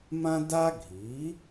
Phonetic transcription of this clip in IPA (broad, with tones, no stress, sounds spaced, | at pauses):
m ã˥ d a˥ ɡʱ i˩˥